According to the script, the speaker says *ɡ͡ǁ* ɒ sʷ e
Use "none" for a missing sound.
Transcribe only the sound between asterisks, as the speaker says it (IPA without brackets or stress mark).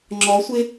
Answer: ŋ͡ǁ